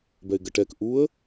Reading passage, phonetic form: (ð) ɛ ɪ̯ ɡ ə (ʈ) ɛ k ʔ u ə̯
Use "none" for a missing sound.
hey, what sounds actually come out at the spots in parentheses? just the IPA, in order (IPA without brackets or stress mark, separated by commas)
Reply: b, ʈ